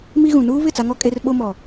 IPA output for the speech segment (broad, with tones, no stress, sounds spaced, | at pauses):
m i˦ ɣ ũ˨ n uː˦ β ɪ˦˨ t͡s a˦ ŋ ɔ˦ kʼ e˦ r ɓ o˦ m ɔ˨